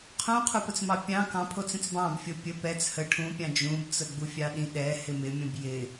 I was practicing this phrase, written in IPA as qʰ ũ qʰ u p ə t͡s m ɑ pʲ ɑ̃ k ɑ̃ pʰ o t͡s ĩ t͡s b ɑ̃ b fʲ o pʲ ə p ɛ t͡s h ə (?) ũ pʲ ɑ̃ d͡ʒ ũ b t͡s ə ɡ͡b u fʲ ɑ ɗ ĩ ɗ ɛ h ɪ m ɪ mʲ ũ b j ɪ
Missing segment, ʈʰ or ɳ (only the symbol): ʈʰ